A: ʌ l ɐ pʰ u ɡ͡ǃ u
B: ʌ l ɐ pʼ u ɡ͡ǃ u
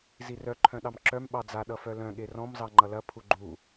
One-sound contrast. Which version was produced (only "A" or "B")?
A